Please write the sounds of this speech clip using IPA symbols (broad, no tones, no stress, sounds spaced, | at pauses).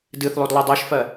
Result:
d ɨ θ lˠ o d lˠ i dˤ ɜ ʃ f ɜ